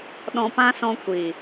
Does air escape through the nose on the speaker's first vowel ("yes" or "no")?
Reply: yes